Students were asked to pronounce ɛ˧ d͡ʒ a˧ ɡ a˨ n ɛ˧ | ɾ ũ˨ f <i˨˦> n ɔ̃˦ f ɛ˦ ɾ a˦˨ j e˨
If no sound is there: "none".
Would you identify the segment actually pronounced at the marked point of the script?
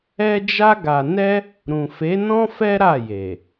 e˨˦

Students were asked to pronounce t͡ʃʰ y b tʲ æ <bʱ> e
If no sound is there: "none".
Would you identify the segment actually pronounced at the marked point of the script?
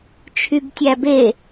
b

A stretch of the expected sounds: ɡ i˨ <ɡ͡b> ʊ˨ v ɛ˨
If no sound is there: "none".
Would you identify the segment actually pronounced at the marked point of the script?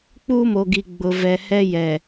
ɡ͡b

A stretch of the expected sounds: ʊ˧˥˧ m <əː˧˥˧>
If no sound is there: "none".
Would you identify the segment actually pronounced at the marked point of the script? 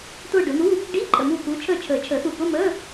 əː˧˥˧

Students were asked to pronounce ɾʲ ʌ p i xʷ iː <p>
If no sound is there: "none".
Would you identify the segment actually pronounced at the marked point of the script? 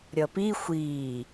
none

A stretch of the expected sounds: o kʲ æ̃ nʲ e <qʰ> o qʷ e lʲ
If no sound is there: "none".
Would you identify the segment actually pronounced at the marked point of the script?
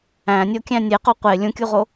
q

